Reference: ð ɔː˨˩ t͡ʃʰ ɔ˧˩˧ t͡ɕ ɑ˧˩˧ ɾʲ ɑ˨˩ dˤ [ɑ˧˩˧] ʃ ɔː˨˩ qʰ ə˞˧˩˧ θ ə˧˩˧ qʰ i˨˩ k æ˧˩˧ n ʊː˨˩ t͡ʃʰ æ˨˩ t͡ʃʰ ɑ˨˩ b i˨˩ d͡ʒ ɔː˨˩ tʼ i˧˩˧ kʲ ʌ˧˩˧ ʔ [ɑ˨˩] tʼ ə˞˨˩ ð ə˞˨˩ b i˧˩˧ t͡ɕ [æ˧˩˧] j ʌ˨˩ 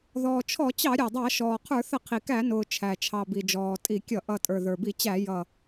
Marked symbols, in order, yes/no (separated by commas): yes, no, yes